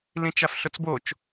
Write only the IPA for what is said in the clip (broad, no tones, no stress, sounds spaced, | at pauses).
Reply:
l ĩ t͡ʃ a f ɬ ʊ t͡s b o t͡ʃ